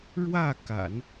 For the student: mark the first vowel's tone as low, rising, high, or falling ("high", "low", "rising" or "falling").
falling